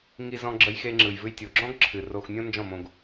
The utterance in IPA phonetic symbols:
ŋ i˧ z ɔ̃˧ ɡ͡ǁ ə˧ j x e˧ ŋ͡ǁ ɯ˨ j v ɨ˧ j tʲ o˨ ɡ͡ǁ ɔ̃˦ ɡ ǁʰ ɨ˨ r o˧ x nʲ õ˦ n d͡ʒ ɔ̃˦˨ m õ˧ ɡ

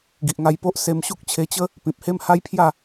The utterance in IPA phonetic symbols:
ɡ i˨ ʔ ŋ a˧ j p o˦ ʔ s e˧ m ɕ u˦ k̚ t͡ɕʰ e˧ t͡ɕ ə˦ | p ĩ˨ p̚ h e˦ m h a˦ j pʰ j a˥˧

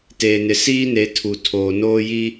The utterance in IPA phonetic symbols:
t eː˨ n ɪ˨ s iː˦ n e˨˦ tʰ u˨ tʰ oː˨ n oː˦ j i˦

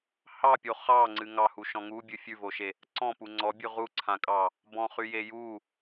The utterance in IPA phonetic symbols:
h ɑ pʲ o χ ɑ ŋ͡ǀ ɨ ŋ ɑ h u ʃ ɔ̃ ŋ u bʲ ɨ fʲ ʉ v o ʃ e | ǀ ɔ̃ p u ŋ͡ǀ ɔ bʲ ʉ ʁ u ǀʰ ã kʼ ɑ | b ɔ̃ χ y j e j u

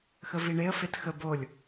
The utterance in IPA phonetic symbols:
x ə v i ɳ e ə̯ f e t x ə b o lʲ

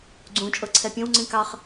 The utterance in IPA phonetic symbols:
ɡ͡ǀ ũ t͡ʃʼ ɤ ǀʰ ɛ pʲ õ w ŋ͡ǀ ĩ k ɑ χ

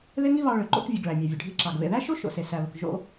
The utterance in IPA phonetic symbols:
ð e˥ ŋ i˥ β ɑ˧ ɭ ø˩ ǃ o̰˧ k vʲ ɵ˩ ɡ ɭ æ˩ mʲ æ˩ vʲ ɵ˩ ɖʱ i˧ ǁ ɑ˩ ɡ β ḛ˩ ð æ˥ ʃ o˥ ʃ o̰˩ s e˩ s æ˩ β ɵ˩ k ʒ o̰˧

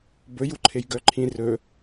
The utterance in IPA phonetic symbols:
b ɵ j u ǃʰ e j ɡ œ ǃʰ ĩ r ɵ

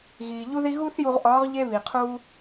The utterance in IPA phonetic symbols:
ɣ iː˩ ʎ u˥ ð i˥ ɣ u˥ θ j u˧ ʁ ʔ ɒː˧˥ ʁ ʎ e˥ β i˩ qʰ uː˥

